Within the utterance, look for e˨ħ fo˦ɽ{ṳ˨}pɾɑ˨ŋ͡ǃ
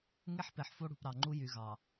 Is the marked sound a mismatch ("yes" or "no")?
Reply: no